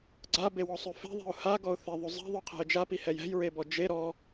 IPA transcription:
ɡ͡ǀ a b e w ɔ sˤ ʉ f e̤ ðˤ e̤ ʊ̯ h a ɡ ɔ ʊ̯ θ e ðˤ ʉ zˤ e̤ ðˤ ʉ qʰ ɛ̤ ə̯ d͡ʒ a p i h ɛ j ɛ̤ j ɹ e b ɔ d͡ʒ e ɾ ɔ

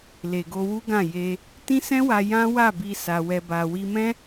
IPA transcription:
l e˨ ɡ o˧ w u˦ ɡ ã˦˨ j e˧ | t ĩ˦ s ɛ̃˦ w a˧ j ã˦ w a˦˨ b i˧ s a˧ w ɛ˧ b a˧ w i˧ m ɛ̃˦

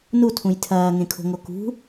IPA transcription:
n u tʰ ũ j tʰ ɐː ŋ ẽ kʰ o̤ ŋ o k ṳ

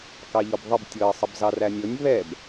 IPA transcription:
k ɑ ʎ ɔ b ðˤ ə b tʲ ɤ ə̯ sˤ ə b z ɑ r æ nʲ ɤ nʲ β ɛ b

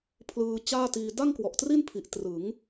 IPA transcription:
pʰ l ɯː˧ t͡ɕ aː˥˩ t iː˧ d a˥˩ ŋ k w ɔ˨˩ ʔ t r i˥˩ n pʰ i˨˩ ʔ t r ɯ˩˦ ŋ

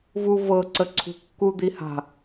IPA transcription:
v u v ɤ ǀ ə ǀʰ ṳ kː u d̪ i h a̤

